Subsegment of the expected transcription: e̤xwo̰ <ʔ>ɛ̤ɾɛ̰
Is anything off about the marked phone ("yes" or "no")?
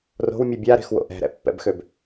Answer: no